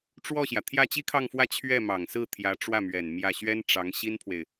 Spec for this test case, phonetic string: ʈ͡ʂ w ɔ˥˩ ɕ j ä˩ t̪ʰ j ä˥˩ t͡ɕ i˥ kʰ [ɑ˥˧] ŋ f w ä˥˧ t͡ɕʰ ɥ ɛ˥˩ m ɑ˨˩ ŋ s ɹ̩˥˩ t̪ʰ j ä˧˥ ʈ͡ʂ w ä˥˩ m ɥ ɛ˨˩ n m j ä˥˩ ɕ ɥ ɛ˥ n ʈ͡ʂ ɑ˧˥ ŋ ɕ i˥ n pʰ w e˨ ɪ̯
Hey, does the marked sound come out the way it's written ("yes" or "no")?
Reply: yes